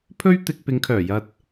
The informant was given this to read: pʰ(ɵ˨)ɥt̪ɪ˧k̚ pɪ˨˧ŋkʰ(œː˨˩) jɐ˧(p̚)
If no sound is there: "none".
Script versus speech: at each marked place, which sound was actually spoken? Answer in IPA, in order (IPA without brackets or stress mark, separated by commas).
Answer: ɵ˥, œː˨˩, t̚